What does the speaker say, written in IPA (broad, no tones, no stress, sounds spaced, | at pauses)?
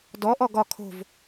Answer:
d ɔ ʔ ɔ ɡ ɒ kʰ o̤ v